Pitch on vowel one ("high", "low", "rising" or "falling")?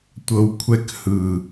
low